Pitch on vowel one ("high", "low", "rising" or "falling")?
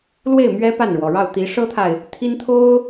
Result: falling